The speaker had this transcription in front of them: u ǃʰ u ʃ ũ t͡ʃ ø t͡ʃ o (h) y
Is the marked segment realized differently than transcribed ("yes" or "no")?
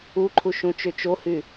no